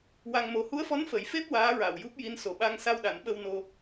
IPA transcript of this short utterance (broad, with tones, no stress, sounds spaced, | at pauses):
w a˧ ŋ m o˧˥ h u˧˥ ə̯ f ɔ˧˥ n f ə˨˩˦ j f e˦˥ p̚ w aː˧˥ ɹ a˨˩ w j u˦˥ p̚ j i˧˥ n s o˨˩ ɓ a˧ ŋ s a˧ w ɗ a˨˩˦ n ɓ ə˧ w n o˧